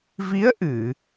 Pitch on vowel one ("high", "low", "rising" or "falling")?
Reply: rising